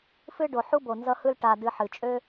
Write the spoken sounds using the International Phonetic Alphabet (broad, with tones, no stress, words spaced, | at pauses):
fɨ˦ɖo˨ ħu˥bo˨nzʌ˦hɯ˦l ʈa˨dɨ˨ħɨ˩ t͡ʃʼø˦